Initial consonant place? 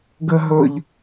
velar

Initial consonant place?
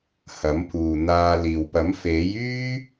glottal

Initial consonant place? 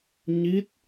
palatal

